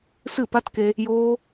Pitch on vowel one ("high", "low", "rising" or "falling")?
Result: falling